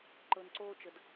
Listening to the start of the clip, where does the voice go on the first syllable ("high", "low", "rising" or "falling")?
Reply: low